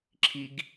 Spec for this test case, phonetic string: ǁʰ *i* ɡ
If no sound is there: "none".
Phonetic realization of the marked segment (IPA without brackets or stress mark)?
i